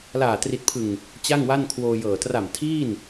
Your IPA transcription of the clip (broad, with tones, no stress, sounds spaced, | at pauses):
l aː˨˩ t r i˨˩ t̚ pʰ ɯ˨˩ ŋ | t͡ɕ a˥˩ ŋ w a˥˩ n kʰ w oː˧ j ɤː˨˩ t r a˨˩ m tʰ iː˥˩ n